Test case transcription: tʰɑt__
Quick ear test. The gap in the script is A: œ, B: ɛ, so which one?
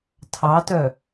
A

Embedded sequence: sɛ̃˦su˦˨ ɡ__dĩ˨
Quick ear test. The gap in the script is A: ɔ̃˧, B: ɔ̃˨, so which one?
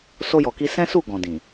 B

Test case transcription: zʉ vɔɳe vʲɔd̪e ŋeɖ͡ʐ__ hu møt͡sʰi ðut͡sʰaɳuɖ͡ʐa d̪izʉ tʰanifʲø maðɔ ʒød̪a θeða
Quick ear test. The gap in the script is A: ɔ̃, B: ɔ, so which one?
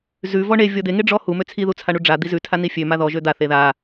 B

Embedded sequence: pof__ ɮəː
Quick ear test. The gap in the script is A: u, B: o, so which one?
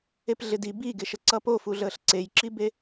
A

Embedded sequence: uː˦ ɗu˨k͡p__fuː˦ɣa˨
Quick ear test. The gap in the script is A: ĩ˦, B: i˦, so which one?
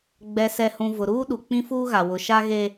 A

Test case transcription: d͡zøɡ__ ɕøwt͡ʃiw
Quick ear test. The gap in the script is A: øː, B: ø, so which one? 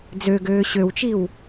A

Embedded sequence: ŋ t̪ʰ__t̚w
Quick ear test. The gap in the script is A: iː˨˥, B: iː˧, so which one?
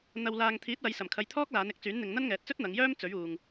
A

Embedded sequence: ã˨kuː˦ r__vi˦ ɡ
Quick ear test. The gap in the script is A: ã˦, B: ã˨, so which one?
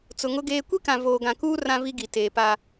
A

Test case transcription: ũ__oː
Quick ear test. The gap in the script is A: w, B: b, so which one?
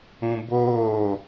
B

